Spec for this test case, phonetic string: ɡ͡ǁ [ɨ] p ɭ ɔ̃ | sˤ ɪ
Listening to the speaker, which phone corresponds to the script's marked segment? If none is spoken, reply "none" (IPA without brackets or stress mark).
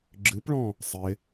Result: ɨ